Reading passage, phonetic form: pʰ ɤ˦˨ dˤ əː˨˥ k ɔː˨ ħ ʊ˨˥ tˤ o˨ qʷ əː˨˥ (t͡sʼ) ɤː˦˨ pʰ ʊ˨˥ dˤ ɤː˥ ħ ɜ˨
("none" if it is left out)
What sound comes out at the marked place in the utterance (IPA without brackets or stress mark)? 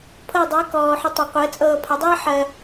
t͡sʼ